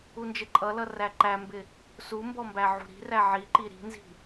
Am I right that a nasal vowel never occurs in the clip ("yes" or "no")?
yes